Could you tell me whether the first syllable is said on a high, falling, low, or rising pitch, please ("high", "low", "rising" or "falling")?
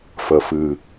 low